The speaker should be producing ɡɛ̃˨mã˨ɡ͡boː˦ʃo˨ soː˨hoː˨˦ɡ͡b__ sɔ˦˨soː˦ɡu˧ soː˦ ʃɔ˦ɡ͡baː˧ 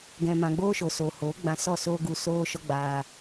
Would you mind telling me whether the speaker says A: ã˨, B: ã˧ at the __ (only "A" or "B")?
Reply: B